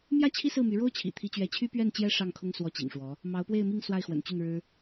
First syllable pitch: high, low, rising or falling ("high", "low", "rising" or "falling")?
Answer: falling